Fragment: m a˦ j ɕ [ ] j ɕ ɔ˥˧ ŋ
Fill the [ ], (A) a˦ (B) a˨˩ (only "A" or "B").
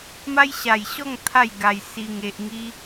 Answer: B